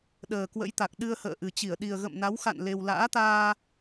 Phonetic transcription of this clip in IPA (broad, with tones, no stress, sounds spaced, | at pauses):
ɗ əː˨˩ k w ə̰˧˥ j t̪ a˨˩ k̚ ɗ ɨ˧ ə̯ h ə̰ː˧˨ ʔ ɨ˨˩ t͡ɕ i˧˩ ə̯ ɗ i˨˩ ə̯ ɣ ə̰˧˨ m n a˨˦ w x a̰˧˨ n l e˧ w l a̰ː˧˥ t̪ aː˧